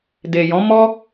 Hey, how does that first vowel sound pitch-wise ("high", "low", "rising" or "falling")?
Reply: low